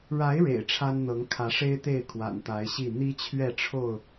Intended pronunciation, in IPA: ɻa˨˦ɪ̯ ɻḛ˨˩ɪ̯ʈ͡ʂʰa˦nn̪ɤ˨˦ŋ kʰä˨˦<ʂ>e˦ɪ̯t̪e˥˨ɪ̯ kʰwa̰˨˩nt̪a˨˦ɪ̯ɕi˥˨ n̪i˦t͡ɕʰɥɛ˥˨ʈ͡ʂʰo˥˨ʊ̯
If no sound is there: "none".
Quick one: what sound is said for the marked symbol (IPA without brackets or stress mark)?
ʂ